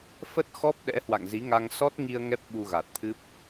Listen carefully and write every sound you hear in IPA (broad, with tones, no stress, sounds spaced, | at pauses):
f ə˦˥ t̚ x ɔ˦˥ p̚ ɗ ɛ̰˧˥ h w a̰˧˨ ŋ z i˨˦ ŋ a˧ ŋ s ɔ˦˥ t̚ ŋ i˧ ə̯ ŋ ɛ˦˥ p̚ ɓ u˧ ɣ a˨˩ t̚ t̪ʰ ɨ˦˥ p̚